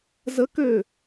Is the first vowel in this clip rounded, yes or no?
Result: no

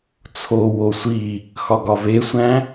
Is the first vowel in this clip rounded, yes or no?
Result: yes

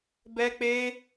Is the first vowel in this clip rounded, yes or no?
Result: no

